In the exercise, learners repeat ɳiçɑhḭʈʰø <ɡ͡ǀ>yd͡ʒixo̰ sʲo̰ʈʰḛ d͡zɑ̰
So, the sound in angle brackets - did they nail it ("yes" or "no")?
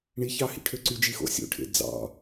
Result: no